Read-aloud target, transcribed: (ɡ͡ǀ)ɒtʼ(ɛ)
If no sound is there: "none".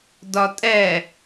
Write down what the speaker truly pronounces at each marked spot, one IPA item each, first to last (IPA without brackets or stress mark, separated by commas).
d, ɛ